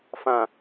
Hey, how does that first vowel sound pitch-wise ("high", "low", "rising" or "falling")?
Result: low